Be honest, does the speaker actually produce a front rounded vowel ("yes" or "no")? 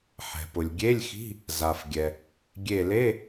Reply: no